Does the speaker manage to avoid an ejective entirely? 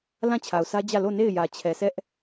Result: yes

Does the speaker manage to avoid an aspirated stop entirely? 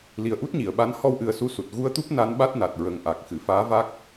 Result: yes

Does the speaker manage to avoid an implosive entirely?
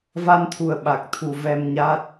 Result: no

